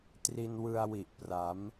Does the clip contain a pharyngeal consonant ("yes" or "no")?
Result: no